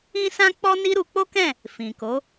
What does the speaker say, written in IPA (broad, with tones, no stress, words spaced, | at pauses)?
ĩ˦sã˦ k͡pɔ˦ni˦ɾu˧ k͡po˦kɛ̃˦˨ | fĩ˨ko˨˦